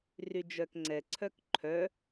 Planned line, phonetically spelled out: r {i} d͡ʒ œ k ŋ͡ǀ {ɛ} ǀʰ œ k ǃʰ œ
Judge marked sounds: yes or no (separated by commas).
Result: no, yes